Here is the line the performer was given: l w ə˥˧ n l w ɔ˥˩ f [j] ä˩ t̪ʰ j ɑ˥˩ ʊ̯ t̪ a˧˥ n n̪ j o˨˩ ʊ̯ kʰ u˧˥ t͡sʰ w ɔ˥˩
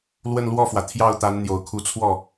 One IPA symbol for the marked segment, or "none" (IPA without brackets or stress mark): w